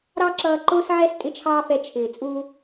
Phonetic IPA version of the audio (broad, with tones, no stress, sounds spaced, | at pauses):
ɾ ɑ˥ ǁ ʌː˧ ǃ ʊː˥ s ʕ ɛ˥ s tʼ ɪ˥ t͡ʃʰ ɑː˥ f ɛ˧ t͡ʃʰ ɪː˩ t͡sʼ u˧